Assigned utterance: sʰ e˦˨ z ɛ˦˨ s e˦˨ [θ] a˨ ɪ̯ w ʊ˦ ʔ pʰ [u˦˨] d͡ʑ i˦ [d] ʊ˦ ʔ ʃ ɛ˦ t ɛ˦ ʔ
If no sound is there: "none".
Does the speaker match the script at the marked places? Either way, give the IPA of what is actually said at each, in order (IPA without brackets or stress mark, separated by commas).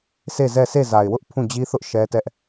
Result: z, ũ˦˨, θ